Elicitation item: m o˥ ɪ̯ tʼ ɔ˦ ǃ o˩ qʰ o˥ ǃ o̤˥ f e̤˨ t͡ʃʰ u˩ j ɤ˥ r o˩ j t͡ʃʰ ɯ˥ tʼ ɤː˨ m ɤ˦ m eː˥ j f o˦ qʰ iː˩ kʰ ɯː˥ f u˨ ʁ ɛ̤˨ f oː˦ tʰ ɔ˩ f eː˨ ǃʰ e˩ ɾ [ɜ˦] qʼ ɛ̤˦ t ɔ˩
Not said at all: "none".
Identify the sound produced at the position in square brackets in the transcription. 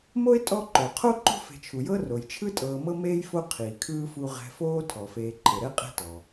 ɛ˦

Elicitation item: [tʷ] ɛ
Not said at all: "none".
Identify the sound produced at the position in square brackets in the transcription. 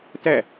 t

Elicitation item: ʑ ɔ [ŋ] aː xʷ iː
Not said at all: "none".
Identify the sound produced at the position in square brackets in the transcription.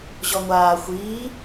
ŋʷ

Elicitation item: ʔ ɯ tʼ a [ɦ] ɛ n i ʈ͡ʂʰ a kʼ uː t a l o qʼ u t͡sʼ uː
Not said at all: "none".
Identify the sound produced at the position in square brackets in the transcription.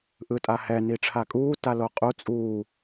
h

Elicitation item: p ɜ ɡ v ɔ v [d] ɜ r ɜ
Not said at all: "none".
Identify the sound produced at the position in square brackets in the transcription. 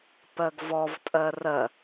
tʼ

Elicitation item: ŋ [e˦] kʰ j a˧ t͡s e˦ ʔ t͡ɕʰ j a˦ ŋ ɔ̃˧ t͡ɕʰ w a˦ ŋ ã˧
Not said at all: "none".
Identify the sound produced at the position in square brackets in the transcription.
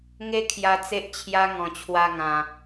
e˦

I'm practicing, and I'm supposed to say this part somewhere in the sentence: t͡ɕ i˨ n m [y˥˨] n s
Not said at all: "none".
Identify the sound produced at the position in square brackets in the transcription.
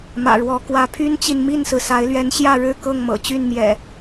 i˥˨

